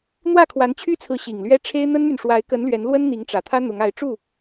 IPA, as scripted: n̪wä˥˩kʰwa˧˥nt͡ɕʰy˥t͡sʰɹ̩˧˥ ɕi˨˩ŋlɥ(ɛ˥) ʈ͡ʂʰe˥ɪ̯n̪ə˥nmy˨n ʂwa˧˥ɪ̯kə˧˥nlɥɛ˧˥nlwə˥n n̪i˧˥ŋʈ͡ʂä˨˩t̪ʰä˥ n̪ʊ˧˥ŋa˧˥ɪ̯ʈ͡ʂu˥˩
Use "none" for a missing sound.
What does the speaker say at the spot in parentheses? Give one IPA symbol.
ɛ˥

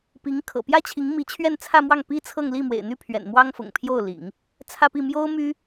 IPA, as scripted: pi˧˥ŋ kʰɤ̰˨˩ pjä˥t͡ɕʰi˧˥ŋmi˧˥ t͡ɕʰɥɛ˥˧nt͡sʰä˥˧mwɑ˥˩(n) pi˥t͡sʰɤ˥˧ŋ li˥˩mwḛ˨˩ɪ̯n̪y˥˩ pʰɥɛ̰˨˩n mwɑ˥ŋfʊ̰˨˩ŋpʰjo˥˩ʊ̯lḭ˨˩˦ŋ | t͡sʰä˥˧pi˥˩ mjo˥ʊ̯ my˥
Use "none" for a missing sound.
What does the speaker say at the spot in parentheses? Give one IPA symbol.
ŋ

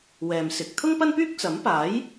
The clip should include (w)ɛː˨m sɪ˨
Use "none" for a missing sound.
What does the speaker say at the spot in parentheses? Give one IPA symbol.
w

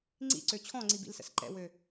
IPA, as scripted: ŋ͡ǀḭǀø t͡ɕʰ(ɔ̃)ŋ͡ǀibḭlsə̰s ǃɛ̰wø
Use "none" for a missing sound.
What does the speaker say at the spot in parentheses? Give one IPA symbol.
ɔ̃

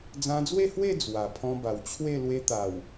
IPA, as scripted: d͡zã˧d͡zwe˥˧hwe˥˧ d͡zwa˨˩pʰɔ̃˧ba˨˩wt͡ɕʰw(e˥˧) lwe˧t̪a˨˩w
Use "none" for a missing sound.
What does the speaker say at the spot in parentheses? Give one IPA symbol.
e˥˧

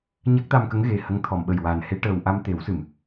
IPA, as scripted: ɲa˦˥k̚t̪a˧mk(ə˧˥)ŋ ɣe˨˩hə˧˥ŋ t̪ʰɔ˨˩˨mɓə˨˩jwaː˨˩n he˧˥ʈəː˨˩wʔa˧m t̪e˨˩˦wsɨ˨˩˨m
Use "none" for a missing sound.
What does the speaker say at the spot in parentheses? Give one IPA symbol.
ə˧˥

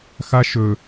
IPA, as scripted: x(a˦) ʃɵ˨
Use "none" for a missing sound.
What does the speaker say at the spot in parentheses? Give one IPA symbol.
a˦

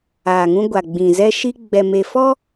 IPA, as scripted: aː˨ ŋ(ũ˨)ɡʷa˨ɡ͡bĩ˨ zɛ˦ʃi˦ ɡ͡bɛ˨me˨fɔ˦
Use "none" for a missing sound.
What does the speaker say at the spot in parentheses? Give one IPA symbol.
ũ˦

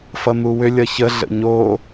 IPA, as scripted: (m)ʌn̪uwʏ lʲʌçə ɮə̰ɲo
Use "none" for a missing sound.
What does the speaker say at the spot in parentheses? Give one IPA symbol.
f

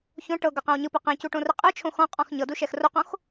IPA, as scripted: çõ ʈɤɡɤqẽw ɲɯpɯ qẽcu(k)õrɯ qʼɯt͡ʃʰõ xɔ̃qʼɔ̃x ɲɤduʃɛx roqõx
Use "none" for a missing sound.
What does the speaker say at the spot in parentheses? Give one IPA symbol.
ʈ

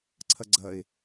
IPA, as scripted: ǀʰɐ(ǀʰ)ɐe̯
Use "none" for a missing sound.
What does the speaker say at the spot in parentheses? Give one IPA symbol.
ɡ͡ǀ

